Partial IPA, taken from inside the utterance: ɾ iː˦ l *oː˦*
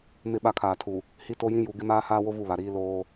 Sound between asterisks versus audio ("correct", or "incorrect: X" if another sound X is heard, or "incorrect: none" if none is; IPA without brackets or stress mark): correct